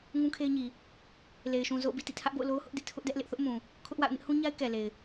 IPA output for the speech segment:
ŋũ˦kʰe˦ɪ̯ɲi˨ | le˨ɪ̯ʃũ˨ zo̰˦˨ʊ̯bḭ˦˨tḭ˦˨ tʰä˦ʔbo̰˦˨ʊ̯ lo˦ʊ̯hʊ˦ʔ dɪ˦ʔtʰʊ˦ʔdɛ˦ʔ lɪ˦ʔθʊ˦ʔmũ˨ | kʰʊ˦ʔwa̰˦˨ʊ̯ nɪ˦ʔhũ˦ɲa˦ɪ̯ kɛ˨le˨ɪ̯

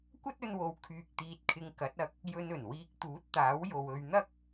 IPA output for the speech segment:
kʷɐ˥t̚ɵ˧nwo˨˧w kʰyː˧k̚t̪iː˧t̚kʰɪ˧ŋ kɐ˨˥t̚ɐ˧k̚ | jɵ˧nɵ˨˩nwiː˧k̚ t̪uː˨˥t̚t̪aː˨˥wjo˨w ɵ˧ɥn̪ɐ˥k̚

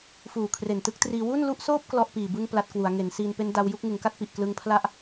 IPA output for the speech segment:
fuː˨˩kʰre˨˩ntɯ˥˩k̚triː˧ wu˥˩nlu˥˩ʔsoː˥˩p̚ klɔ˥˩ʔpiː˨˩bɯ˥˩ŋ pla˦˥t̚kwu˩˦a̯ ŋe˩˦nsiː˧npe˦˥n da˧w ju˥˩k̚ŋɯ˩˦ŋka˥˩t̚pi˨˩ʔ klɯ˧ŋpʰla˥˩ʔ

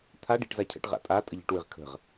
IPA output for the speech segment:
t̪ʰa ɖi̤ʈzacʰə̰ʈʁa̰ tʼa tʼəʎə̤ʈwɨʁ kʰə̤ʁ

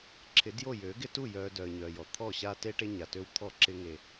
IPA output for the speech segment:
ǁʰɪ˨˦djo˦˨ jø˨˦ɡɪ˦tu˦˨ jœː˨ dœ˨ə̯ɲœː˨jɔ˨ t̪ʰɔ˦˨ɕa˦te˦ ʈe˦ɲa˨tø˦wt̪ʰɔ˦˨ ǁɪ˦ ŋe˦

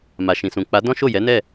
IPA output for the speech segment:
ma˨ʃĩ˨sũ˨ k͡pa˨˦ dɔ̃˦ʃo˦˨ jɛ˨˦nɛ˦˨

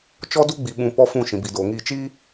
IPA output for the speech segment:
t͡ʃɔ˦ du˦ɡ͡bi˨ɓũ˨ pɔ˦fũ˦˨ ʃĩ˨bi˨doː˨ŋiː˦˨ t͡ʃiː˦

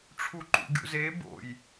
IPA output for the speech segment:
ʈ͡ʂʰuǃṵɡʲṵze bo̰j

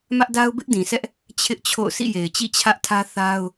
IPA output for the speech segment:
mä˦ʔda˦ʊ̯ bɪ˦ʔdĩ˨sʰɛ˦ʔ | t͡ɕʰɪ˦ʔt͡ɕʰo̰˦˨ʊ̯ sḭ˦˨je˨ɪ̯t͡ɕḭ˦˨ t͡ɕʰä˦ʔtʰä˦ θa˦ʊ̯

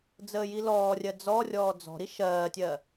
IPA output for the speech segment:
d͡zəːjilɔːrʲɜ d͡zɔrʲɔː d͡zɔ̤ɾi ʃɜːtʲɜ

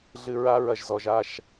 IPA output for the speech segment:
ɮɨ˨ ɹa˦ɹɐ˨ʒzɔ˨ʒ a˦˨ʃ

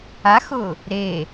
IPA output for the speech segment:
axʊ | ɾe

